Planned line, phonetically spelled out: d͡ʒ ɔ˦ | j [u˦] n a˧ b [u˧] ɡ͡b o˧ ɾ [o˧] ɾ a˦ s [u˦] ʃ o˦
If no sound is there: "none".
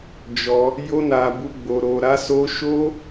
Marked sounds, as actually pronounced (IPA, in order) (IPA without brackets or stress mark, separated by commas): o˦, u˧, o˧, o˦